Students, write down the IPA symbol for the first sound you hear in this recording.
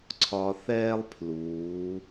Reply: ǀʰ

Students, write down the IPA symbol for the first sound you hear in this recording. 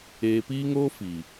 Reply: eː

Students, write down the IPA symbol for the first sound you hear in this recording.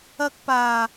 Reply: ɐ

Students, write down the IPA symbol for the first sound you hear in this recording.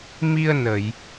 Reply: m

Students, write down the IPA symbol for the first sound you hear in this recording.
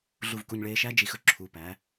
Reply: ɮ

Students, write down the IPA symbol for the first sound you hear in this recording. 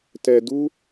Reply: t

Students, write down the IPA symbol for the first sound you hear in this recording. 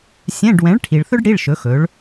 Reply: sʲ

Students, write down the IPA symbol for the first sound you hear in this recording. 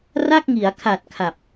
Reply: r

